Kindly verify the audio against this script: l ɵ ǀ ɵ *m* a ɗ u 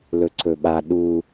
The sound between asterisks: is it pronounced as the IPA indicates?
no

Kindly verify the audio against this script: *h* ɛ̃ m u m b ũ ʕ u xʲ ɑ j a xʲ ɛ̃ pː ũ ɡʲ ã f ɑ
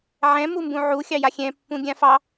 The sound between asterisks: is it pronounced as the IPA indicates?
no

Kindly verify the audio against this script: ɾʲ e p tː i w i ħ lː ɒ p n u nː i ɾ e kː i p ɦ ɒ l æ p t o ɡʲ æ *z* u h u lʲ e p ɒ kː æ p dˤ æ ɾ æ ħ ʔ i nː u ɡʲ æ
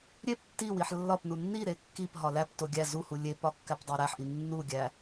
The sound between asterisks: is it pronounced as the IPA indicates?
yes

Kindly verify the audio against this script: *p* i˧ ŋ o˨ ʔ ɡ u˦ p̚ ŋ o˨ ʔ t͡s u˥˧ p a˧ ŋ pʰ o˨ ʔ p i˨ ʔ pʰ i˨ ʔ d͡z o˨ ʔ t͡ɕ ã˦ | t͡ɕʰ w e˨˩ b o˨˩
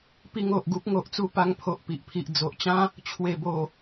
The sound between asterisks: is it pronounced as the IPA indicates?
yes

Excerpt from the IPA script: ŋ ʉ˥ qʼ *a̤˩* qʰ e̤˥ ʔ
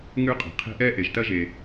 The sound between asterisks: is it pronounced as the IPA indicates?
yes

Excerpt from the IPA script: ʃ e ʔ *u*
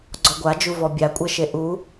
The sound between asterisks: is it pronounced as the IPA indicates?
yes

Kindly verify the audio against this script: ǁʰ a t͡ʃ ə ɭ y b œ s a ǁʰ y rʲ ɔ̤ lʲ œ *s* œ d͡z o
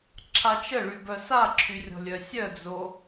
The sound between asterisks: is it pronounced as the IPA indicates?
no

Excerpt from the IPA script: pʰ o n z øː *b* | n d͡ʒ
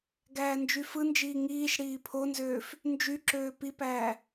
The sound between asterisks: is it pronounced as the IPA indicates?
no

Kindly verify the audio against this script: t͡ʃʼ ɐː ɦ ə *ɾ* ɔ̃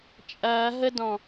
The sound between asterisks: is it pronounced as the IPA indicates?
no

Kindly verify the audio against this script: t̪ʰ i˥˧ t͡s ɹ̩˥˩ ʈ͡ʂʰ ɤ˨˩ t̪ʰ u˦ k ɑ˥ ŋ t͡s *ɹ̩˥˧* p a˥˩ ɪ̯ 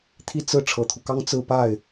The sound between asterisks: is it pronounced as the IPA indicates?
yes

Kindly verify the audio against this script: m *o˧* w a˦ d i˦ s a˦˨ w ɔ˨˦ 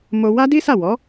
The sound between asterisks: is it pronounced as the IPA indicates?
yes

